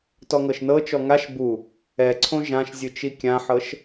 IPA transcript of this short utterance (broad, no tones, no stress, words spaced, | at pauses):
tɔŋɤʃnɤ t͡ʃɔŋaʃ bu | ɛǀʰõ ʒãʃzʲɯt͡ʃi kʲãħɤʃ